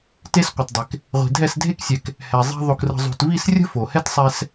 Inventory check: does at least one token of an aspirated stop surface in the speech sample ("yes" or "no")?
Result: no